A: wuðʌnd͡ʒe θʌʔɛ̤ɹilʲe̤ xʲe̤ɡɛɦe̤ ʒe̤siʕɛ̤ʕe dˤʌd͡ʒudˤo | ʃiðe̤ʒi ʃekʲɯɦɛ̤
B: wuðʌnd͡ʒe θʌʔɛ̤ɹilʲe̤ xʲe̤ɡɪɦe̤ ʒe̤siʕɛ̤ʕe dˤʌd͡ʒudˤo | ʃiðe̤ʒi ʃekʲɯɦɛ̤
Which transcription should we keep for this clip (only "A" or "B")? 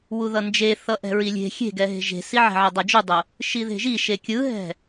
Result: A